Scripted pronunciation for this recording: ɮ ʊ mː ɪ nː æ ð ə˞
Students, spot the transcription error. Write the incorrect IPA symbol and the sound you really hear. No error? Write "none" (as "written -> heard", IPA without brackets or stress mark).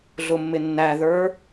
none